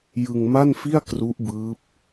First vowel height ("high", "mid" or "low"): high